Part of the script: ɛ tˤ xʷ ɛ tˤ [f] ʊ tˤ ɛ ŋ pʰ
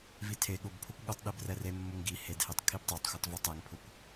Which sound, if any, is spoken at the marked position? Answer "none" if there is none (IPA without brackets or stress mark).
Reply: v